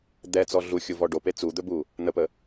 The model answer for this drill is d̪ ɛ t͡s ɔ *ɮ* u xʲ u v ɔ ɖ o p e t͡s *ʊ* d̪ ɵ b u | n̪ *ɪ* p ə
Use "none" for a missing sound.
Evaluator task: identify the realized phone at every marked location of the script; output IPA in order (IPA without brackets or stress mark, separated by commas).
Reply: ɮ, u, ə